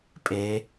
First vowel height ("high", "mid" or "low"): mid